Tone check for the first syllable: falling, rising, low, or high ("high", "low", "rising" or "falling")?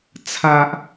high